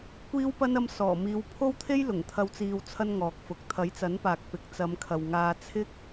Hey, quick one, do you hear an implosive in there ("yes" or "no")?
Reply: no